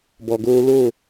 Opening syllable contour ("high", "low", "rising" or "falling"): low